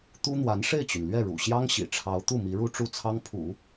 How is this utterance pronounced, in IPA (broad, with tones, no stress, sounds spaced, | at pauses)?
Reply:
t̪ u˥ n̪ w a˧˥ n ʂ e˥˩ ɪ̯ t͡ɕ y˩ n l ɥ ɛ˥˩ ɻ ṵ˨˩ ɕ j ɑ˥ ŋ ɕ ḭ˨˩ ʈ͡ʂʰ ɑ˧˥ ʊ̯ t̪ u˥˩ m i˧˥ ɻ u˥ ʈ͡ʂ u˥˩ t͡sʰ ɑ˥ ŋ pʰ ṵ˨˩˦